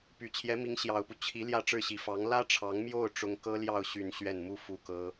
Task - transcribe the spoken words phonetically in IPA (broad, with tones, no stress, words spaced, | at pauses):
py˨˩t͡ɕʰjɛ˧˥mi˧˥ŋ ɕjɑ˨˩ʊ̯pu˦ t͡ɕʰi˧˥ ljä˥˧ʈ͡ʂɻ̩˥˩ɕi˧˥ fɑ˧˥ŋ lä˥ʈ͡ʂʰɑ˧˥ŋmjo˥˩ʊ̯ ʈ͡ʂʊ˥ŋ kɤ˥ljɑ˥˧ʊ̯ ɕy˥˧n ɕɥɛ˥˩nmu˥fu˥˩kɤ˥